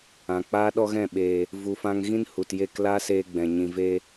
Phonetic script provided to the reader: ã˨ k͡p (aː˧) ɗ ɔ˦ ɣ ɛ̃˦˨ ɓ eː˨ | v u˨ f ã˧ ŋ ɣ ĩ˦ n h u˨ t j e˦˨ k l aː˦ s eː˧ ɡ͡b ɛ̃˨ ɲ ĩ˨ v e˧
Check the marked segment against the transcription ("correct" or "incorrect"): incorrect